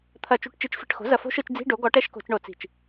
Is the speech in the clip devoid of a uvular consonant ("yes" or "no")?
yes